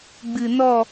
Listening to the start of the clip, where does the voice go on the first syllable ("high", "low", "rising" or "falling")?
low